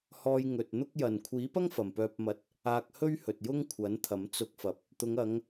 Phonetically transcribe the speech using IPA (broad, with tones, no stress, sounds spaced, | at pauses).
h ɔː˧ j ŋ ɵ˨ t̚ n̪ ʊ˥ k̚ j ɐ˨ n kʷʰ iː˨˥ p ɐ˥ ŋ f ɐ˨ m p œː˧ p̚ m ɐ˧ t̚ | aː˧ k̚ h ɵ˥ ɥ h ɵ˨ t̚ j ʊ˥ ŋ kʷʰ ɐ˨˥ n t̪ʰ ɐ˨˥ m t͡s ʊ˧ k̚ f ɐ˨ p̚ | t̪ ʊ˨˧ ŋ ɐ˨˧ ŋ